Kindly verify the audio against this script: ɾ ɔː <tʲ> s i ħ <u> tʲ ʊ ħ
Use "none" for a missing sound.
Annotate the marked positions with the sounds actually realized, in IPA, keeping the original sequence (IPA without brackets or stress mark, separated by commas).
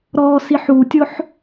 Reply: none, u